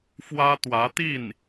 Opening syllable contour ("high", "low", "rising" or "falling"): high